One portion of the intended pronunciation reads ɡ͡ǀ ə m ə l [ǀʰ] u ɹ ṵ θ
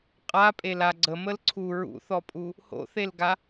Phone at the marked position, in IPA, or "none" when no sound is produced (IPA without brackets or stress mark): ǀʰ